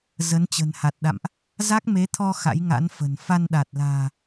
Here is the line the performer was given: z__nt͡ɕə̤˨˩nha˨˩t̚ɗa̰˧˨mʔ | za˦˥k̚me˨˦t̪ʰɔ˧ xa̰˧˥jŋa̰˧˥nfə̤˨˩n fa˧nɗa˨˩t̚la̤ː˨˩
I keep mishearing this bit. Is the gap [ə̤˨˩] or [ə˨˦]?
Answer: ə˨˦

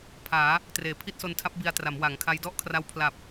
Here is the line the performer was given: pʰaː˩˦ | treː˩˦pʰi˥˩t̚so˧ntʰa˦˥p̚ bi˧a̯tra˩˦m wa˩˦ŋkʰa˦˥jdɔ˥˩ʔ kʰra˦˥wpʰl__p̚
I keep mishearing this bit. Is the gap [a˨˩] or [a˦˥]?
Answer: a˨˩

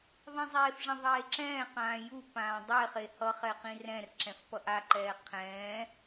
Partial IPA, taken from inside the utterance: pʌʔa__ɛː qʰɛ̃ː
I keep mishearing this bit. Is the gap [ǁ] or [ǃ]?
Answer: ǃ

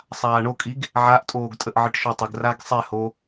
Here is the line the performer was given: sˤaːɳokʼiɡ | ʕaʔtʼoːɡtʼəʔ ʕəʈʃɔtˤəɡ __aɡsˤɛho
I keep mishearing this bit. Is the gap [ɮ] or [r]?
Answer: r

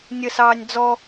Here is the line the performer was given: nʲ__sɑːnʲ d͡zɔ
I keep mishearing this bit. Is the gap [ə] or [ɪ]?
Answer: ə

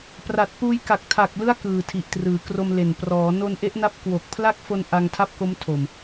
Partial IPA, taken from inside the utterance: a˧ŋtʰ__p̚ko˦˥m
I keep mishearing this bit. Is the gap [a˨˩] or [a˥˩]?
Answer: a˥˩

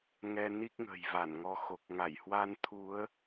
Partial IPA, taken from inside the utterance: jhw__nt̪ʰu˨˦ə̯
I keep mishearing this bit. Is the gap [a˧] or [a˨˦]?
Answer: a˧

